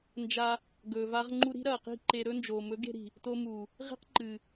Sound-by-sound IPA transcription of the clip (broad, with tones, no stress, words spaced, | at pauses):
nd͡ʒa˧ | ɡɵː˨va˧ʁŋ͡ǃu˧ ɾi̤˦ɾɐː˨ qi̤˦˨ǃe˧ɾɵ˦nd͡ʒoː˨ mɵ˨˦ɡe̤˧ɾi̤˨ | to˧mu˨ | ʁi̤˦qǃɨ˨